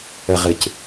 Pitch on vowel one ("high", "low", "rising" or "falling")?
low